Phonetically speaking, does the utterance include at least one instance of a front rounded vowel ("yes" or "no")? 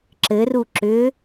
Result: yes